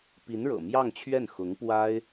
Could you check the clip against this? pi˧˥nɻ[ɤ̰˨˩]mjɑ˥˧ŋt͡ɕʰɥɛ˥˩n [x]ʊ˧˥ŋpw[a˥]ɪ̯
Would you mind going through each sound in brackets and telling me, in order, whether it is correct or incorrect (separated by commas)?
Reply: correct, correct, correct